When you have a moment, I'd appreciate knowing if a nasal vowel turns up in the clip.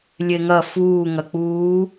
no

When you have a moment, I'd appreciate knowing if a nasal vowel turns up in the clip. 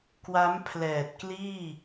no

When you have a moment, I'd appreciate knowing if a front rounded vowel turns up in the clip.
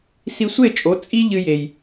no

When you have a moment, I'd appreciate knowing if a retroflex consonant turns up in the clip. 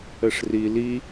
yes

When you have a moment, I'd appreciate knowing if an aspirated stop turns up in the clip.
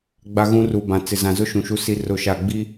no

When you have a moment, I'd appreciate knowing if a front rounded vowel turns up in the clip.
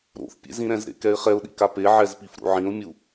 no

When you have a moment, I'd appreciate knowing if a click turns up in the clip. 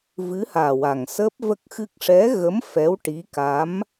no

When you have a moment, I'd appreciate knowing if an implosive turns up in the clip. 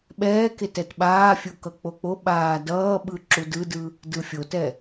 yes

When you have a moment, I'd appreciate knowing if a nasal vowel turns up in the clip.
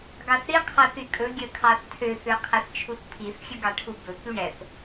no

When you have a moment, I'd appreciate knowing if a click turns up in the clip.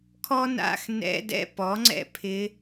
yes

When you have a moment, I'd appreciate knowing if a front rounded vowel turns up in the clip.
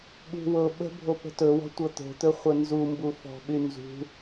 yes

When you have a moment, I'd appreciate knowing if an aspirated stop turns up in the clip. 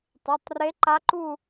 no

